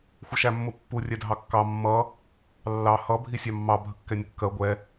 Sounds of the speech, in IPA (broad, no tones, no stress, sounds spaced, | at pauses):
xʷ ʌ ʃ æ mː ʊ pː u rʲ ɛ dʱ ɑ kː ɑ mː ʌ | lː ɑ h ʌ bʱ i sʲ ɑ mː ɑ bʱ ə kː ɛ nʲ ə kː ɜ ɡʷ ɛ